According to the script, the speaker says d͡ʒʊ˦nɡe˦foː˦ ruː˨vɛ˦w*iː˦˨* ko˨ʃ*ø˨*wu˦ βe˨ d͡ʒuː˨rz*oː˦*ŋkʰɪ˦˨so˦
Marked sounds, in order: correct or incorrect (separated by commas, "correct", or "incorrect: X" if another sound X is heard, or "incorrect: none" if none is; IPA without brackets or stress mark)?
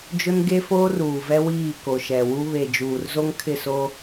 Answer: correct, incorrect: ɛ˨, incorrect: o˦